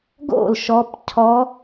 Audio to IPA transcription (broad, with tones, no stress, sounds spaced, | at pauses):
ɡ o̰˥˩ l ʃ ɔ˦˥ p cʰ ɔ˦˥